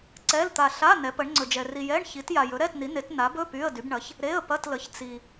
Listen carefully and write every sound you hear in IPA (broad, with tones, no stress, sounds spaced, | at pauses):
ǀ ɛ˧˥˧ l t̪ a˧ ɬ a˧˥˧ n ɛ˨˥ p ə˨˥ ɳ ŋ͡ǀ ɵ˧ d͡ʒ ɛ˧ r i˧ j ɛ˧˥˧ ɳ ç i˨˥ t j a˧ j ɵ˨˥ ɾ ɛ˧˥˧ t n i˨˥ n e˨˥ t n a˨˥ b ɵ˧˥˧ p y˧˥˧ ə̯ d y˨˥ b ɳ ɐ˨˥ ç | ɾ e˧˥˧ ə̯ p ɐ˧˥˧ t l ə˨˥ ç t͡s i˧